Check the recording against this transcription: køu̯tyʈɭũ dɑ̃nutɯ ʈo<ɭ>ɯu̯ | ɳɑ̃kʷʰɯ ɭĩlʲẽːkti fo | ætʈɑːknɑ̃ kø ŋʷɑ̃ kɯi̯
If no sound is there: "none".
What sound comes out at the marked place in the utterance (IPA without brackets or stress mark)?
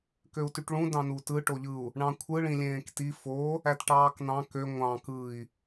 ʎ